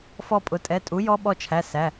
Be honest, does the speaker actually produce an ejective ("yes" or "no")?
yes